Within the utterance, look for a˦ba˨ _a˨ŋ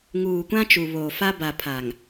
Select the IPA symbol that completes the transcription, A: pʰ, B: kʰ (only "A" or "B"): A